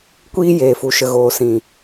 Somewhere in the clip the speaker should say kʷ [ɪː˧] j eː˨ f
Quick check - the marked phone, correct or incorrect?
incorrect